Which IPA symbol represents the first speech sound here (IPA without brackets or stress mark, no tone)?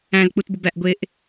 æ̃